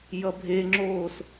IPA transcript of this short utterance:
j ʌ bʱ e ŋ͡ǁ oː s

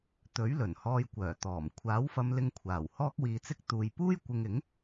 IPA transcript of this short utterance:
t̪ ɵ˨˥ ɥ l ɵ˨˩ n h ɔː˧ j kʷ œː˨˩ t̪ ɔː˨˩ m kʷʰ aː˨˥ w f ɐ˧ m l ɪ˧ ŋ kʷʰ aː˨˩ w h ɔː˥ k̚ w iː˧ t͡s ɪ˥ k̚ t̪ uː˧ j p uː˥ j kʷ ɪ˧ ŋ ɪ˨˥ ŋ

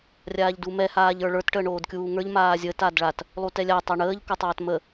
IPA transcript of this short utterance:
rʲ aː ʎ d u m ɛ h aː ʎ ə˞ ɭ ə˞ t ʈ əː ɳ oː d kʲ uː ŋ ə˞ ʎ m aː zʲ əː t a d ɭ a t | lˠ u t ɛ lʲ a tˤ a ɳ əː ʎ k o tˤ aː t m ə

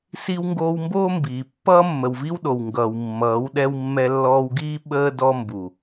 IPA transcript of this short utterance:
s i˧ w ŋ ɡ oː˧ w m b oː˦ m b iː˨ pː ʌː˦ mː ə˨ w v i˦ w ɗ o˨ w ŋ ɡ ʌː˨ w mː ʌː˨˦ w ɗ ɛ˦ w mː ɛ˧ lː ɔː˧ w ɡ iː˦ ɓ əː˦ d ɔ˧ m b u˨

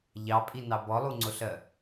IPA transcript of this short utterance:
ʎ ɑ pʼ i n ɑ b ɔ lˠ u ŋ͡ǀ ʊ ɬ ɜ

